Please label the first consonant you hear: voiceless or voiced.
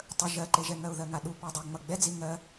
voiceless